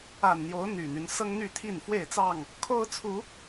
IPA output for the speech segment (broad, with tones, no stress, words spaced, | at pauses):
a˨˩nn̪jo˨˦ʊ̯ n̪y˨˩n̪y˨˦n sɤ˦ŋn̪y˥˨t̪ʰi˥˨n fwe˥˨ɪ̯t͡sɑ˥˨ŋ | kʰo˦ʊ̯t͡sʰu˨˦